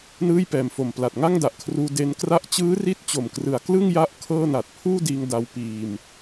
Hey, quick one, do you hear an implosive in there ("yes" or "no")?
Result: no